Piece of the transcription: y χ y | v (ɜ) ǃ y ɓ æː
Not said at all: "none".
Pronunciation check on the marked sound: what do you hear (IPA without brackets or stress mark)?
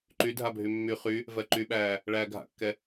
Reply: ɜ